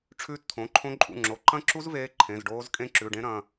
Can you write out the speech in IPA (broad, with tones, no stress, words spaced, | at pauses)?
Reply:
ʈ͡ʂʰʉː˦˥tt̪ʰõ˩˧˩ǃʰõ˦˥ ǃʼṵ˩˧˩ŋ͡ǁo˩˧˩ǃɐ̃˦˥ǁu˦˥z veː˦˥ ǃʰẽ˩˧˩zɖoː˦˥z kʼẽ˦˥ǁʉ˩˧˩ɖẽ˦˥ ɾɐ̃˩˧˩